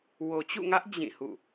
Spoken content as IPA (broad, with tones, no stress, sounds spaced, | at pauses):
w o˨ t͡ɕ ṵ˦˨ ŋ ä˦ ʔ d͡ʑ ĩ˦˨ h ṵ˦˨